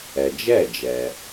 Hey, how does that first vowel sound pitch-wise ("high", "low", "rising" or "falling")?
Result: low